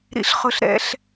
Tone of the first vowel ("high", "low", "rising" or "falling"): high